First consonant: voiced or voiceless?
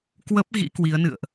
voiceless